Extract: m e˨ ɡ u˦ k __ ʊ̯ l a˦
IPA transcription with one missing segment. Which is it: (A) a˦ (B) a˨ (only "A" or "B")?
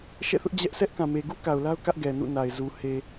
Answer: B